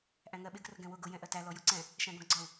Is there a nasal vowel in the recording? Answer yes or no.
yes